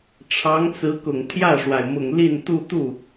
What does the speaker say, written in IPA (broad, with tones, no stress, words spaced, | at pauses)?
ʈ͡ʂʰɑ˧˥ŋt͡sɹ̩˧˥kʊ˨˩ŋ t̪ʰjä˥˩ʂwa˩ɪ̯mʊ˨˩ŋ li˥˧n t̪u˥˧ t̪u˥˩